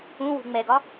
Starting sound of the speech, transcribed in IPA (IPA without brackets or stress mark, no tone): ũ